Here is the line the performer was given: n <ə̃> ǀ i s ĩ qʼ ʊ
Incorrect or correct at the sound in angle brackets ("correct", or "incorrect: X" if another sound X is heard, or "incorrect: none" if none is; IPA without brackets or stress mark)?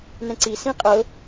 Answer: incorrect: ɛ̃